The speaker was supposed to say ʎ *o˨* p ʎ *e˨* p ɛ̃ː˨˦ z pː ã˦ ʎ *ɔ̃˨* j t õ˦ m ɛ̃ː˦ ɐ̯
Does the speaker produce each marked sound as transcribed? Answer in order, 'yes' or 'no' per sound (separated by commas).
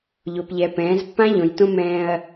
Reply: yes, no, no